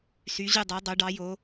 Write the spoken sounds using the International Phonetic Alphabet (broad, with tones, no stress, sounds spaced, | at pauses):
s y˩˧ ʑ y˧˩ dˤ æ˩˧ dˤ o˩˧ ɖ ɑ˩˧ j o˩˧